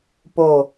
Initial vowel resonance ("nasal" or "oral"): oral